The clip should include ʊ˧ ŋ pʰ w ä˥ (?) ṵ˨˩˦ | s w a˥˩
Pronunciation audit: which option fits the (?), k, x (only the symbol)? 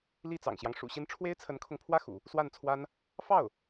x